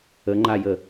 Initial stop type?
click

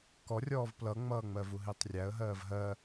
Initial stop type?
plain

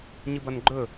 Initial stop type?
plain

